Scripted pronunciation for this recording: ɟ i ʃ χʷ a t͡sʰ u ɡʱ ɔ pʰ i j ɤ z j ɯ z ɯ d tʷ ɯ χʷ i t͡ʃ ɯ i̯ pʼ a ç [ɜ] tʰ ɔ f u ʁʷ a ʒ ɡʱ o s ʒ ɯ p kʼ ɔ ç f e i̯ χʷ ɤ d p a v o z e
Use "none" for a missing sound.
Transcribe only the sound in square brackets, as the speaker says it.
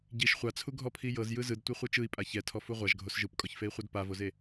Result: ɛ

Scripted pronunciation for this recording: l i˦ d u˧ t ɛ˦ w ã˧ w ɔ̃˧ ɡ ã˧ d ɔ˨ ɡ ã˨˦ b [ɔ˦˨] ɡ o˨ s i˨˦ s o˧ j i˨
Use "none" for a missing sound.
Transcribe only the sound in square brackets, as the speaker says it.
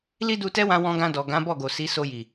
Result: ɔ˦˨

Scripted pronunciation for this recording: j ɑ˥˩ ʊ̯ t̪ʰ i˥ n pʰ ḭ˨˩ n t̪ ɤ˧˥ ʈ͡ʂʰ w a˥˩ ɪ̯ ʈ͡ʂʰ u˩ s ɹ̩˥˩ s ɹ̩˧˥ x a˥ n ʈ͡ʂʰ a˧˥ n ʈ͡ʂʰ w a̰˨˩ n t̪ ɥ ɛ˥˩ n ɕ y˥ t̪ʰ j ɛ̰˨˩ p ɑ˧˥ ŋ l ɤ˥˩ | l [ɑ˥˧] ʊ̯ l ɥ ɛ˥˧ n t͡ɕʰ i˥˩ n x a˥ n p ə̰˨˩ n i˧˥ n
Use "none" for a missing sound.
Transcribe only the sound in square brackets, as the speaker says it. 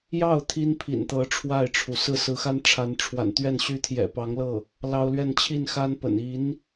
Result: ɑ˥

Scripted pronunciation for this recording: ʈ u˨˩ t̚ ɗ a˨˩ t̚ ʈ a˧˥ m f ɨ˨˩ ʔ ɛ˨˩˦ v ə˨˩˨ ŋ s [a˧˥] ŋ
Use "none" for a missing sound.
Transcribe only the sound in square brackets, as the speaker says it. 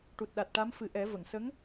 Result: ə˧˥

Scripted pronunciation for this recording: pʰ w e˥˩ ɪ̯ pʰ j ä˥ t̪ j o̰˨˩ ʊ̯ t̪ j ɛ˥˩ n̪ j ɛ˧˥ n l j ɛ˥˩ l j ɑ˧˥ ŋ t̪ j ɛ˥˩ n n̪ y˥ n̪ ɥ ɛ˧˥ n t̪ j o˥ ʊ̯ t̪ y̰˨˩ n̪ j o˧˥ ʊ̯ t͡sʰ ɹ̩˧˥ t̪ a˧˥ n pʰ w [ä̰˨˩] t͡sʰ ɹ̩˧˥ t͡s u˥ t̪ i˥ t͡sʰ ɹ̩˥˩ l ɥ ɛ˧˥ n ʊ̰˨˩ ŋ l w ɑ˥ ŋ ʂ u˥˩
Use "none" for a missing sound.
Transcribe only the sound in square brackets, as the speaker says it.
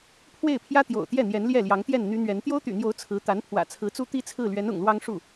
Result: ä̰˨˩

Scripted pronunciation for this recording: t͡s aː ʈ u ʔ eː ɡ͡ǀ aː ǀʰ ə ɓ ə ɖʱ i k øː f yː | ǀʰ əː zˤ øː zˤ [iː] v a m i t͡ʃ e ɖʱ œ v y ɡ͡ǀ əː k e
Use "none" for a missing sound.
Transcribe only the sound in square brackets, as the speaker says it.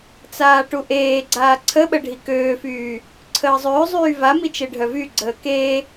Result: yː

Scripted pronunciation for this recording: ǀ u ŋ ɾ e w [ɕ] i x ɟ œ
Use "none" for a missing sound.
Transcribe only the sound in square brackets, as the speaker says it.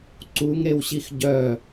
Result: ɕ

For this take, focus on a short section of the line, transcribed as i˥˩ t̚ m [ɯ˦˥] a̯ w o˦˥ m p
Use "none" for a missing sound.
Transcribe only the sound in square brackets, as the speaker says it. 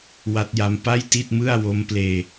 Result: ɯ˥˩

